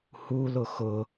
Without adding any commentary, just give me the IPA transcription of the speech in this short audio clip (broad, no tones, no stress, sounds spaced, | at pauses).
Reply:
h u l ʊ x ʊ